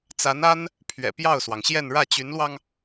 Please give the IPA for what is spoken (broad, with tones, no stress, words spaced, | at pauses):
t͡sa˧˥na˥n | pʰɥɛ̰˨˩pjɑ˥˩ʊ̯swɑ˩ŋɕjɛ˥˧n ɻä˥˩t͡ɕy˧˥nlwɑ˧ŋ